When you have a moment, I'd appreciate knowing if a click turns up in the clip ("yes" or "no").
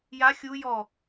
no